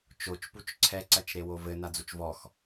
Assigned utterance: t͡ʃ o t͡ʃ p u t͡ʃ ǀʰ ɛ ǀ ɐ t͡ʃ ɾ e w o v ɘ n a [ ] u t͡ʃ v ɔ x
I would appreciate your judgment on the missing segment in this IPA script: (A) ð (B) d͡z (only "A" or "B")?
B